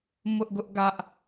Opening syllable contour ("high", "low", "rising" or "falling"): high